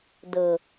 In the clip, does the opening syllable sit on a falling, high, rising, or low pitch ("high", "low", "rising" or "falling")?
low